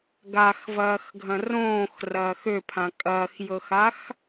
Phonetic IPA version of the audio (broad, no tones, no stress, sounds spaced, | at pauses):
ɡ a x v ɐː x ɡʱ ɐ̃ r õː x r ɐː x ø pʰ ã kʼ ɐː x j ɤ x a x